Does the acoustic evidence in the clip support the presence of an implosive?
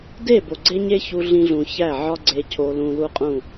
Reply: no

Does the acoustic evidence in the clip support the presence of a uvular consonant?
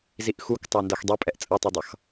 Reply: no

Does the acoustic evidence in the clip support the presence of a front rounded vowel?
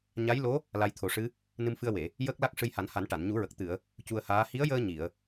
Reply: no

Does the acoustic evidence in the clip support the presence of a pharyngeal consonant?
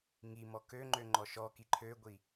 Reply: no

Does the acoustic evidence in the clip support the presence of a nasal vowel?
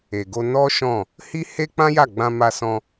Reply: yes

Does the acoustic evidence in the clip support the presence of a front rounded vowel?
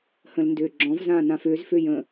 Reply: yes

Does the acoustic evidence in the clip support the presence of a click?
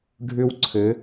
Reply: yes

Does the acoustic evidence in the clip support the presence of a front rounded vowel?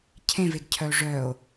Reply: yes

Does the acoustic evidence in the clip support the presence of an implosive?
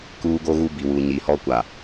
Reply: no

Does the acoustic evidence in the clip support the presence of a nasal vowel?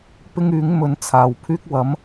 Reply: no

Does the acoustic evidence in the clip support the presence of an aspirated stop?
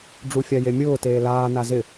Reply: no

